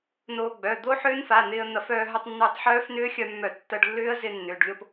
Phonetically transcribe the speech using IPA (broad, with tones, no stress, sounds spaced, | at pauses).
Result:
n oː˧ ɡ͡b œ˩˧˩ d̪ o˦˥ ħ ʏː˦˥ n f a˩˧˩ n̪ ɪː˧ ə̯ n̪ ɐ˧˩˧ f œː˧ ɦ œ˧ tˤ nː ʏː˧ tˤ ħ œː˦˥ f n ʏː˦˥ xʲ œ˧ mː œ˧˩˧ tː ɐ˧ ɖ lː ʏː˦˥ ə̯ z ɪ˧ nː ʏː˩˧˩ ɖ lʲ o˥˨ p